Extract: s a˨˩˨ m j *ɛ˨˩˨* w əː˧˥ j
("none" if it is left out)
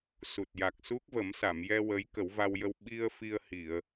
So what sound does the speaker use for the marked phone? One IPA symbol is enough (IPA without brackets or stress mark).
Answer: ɛ˧